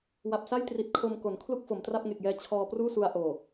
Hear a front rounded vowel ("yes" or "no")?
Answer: no